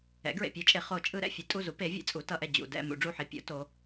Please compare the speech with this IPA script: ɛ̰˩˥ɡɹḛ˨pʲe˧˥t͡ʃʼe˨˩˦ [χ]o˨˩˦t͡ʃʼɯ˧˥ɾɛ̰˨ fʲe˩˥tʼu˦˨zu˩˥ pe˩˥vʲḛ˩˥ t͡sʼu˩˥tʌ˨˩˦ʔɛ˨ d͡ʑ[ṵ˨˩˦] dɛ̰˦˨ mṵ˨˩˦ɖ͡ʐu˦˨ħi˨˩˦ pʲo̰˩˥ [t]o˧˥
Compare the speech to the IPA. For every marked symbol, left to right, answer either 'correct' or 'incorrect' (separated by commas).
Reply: correct, incorrect, correct